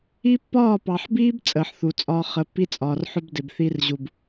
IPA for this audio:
i˦pːɒː˦˨pɑ˨ħbiː˦b t͡sʼəː˨ħθu˨t͡sʼɒː˦ χə˨˦pːi˦t͡sʼɒː˨rħʊ˦b dɪ˨bθi˦rʑu˨b

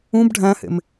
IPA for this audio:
ũb ɖʱæ̃hḛm

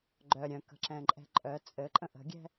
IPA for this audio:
ɡ͡ǃœ ɾʲœ̃kə̤ǁɛ̃ǃʼɛ̤ ǃʼœ t͡sʼɘǃʼə̃ ʔə̤ɡʲɛ̤

